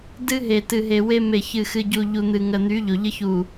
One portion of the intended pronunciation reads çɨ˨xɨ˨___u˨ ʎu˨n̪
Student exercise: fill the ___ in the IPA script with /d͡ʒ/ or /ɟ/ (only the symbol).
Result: ɟ